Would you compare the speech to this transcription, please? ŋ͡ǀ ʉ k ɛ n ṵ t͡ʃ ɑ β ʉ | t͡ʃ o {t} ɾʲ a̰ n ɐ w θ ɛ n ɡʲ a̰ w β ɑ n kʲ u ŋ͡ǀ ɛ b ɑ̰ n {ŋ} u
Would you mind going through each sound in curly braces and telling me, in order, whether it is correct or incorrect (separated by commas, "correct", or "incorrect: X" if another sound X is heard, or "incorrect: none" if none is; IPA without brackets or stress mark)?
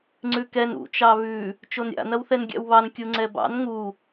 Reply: incorrect: n, correct